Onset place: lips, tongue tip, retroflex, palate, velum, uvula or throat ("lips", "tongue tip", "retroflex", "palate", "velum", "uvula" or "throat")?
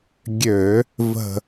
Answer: velum